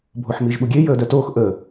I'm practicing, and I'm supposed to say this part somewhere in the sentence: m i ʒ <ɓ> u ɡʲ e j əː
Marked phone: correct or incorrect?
correct